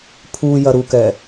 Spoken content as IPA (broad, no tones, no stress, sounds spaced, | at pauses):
pʰ u j ɐ ɾ u k ɛ